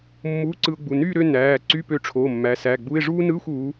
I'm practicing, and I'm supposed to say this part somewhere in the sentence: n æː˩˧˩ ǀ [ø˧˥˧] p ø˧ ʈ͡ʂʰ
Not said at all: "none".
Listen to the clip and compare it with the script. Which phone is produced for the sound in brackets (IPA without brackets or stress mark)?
y˧˥˧